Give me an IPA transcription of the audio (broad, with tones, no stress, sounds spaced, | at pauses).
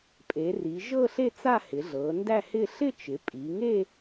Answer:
pʼ e˩˧ r i˩˧ ʒ ɤ˥˧ ɬ e˥˧ t͡s a˥˧ h ɪ˩˧ ɮ ɤ˩˧ n d æ˥˧ h ɪ˥˧ ɬ ɪ˥˧ t͡ʃ ɪ˩˧ pʼ i˩˧ ŋ e˥˧